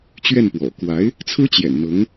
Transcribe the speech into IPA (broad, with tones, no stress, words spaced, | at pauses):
t͡ɕɥɛ˥˩npwɔ̰˨˩ kwa˧˥ɪ̯ | t͡sʰɹ̩˥t͡ɕjɛ̰˨˩nn̪ɤ˧˥ŋ